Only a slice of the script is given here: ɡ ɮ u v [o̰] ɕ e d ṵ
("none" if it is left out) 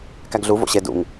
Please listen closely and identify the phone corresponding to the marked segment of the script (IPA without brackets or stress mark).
o̰